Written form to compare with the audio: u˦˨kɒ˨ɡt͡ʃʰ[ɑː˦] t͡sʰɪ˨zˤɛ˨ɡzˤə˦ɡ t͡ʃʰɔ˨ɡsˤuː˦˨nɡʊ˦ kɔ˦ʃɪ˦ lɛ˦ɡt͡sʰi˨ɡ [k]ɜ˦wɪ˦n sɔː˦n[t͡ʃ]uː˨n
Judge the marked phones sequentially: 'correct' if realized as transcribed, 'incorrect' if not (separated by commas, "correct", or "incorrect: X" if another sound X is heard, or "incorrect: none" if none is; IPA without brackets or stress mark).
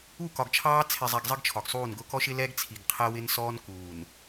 correct, incorrect: qʰ, incorrect: k